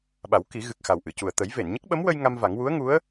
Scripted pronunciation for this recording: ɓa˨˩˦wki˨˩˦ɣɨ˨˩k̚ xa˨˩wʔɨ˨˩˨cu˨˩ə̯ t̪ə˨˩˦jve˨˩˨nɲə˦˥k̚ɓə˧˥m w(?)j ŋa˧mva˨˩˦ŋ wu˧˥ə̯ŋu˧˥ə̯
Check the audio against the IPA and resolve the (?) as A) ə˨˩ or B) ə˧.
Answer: B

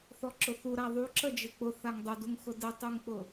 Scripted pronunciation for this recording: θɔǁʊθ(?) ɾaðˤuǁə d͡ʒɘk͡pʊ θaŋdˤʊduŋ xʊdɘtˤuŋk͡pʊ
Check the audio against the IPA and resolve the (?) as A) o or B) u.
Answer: B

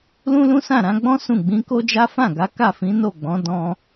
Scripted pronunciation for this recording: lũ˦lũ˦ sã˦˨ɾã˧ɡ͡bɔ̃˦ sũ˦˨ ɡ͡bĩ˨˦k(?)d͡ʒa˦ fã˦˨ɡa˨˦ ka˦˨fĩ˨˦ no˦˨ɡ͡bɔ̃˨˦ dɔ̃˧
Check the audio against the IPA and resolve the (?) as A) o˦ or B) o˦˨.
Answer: A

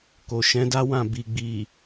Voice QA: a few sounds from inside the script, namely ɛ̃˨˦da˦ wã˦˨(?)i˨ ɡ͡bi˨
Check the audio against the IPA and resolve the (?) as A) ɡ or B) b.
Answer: B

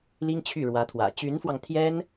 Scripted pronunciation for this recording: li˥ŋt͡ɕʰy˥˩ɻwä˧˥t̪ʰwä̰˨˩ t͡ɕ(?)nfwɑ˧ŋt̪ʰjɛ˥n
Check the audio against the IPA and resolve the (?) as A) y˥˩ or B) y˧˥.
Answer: B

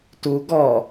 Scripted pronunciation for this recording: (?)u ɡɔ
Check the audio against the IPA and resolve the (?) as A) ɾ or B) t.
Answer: B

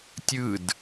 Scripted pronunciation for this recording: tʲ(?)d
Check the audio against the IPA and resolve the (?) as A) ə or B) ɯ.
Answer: B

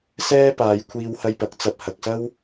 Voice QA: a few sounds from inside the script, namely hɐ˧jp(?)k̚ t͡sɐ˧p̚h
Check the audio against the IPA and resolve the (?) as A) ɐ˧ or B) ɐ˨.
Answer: B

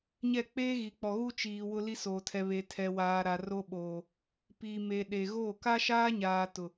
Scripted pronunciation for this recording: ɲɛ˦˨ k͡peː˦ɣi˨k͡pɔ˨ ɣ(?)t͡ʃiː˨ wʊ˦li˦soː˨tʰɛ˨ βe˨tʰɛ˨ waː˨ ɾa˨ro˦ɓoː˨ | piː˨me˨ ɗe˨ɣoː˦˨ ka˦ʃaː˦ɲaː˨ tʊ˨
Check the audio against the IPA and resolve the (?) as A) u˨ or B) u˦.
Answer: B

